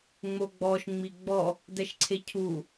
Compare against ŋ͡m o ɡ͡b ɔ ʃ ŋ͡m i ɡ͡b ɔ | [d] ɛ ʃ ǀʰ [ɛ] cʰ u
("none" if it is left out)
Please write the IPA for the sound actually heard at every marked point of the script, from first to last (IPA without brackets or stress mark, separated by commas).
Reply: d, e